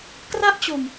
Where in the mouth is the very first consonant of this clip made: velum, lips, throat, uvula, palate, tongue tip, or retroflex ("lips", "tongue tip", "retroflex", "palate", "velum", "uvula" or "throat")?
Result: velum